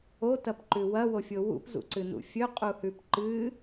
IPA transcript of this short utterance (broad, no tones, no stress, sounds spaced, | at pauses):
o t ɐ p ǃ ʉ w ɐ w o fʲ o w ṵ p z ṵ ǀ ɨ n ṵ fʲ ɵ qʼ u h ʉ p ǃ ɨ